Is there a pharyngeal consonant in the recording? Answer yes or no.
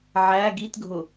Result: yes